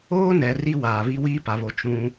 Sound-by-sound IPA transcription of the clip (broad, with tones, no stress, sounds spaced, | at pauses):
oː˦ n ɛ˨ r i˦ w aː˨ β i˦ w iː˦ p a˨ β o˨ t͡ʃ ũ˦